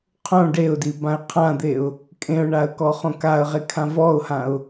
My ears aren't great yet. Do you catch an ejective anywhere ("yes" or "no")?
yes